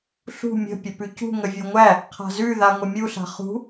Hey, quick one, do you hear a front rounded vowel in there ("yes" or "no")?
no